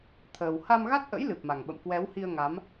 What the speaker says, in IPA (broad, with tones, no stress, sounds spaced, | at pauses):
t̪ʰ əː˨˩ w h a˧ m ɣ a˦˥ t̚ ʔ ə̰˧˥ j l ɨ˨˩ p̚ m a˨˩ ŋ ɓ ə̰˧˨ m k w ɛ˨˦ w h i˧ ə̯ ŋ a˨˦ m